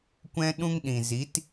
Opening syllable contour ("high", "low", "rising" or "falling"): high